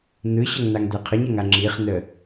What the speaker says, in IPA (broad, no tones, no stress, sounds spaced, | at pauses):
n̪ ɯ ɕ ə ŋ n̪ a ŋ d̪ ɛ qʰ ə ɲ ɐ ŋ a ŋ͡ǁ i χ n̪ ə